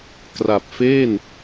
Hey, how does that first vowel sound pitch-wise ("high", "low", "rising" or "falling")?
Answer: low